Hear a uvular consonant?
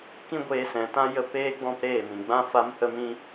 no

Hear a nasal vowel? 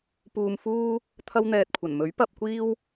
no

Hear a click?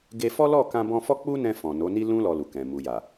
no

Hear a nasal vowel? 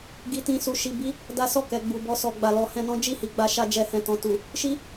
yes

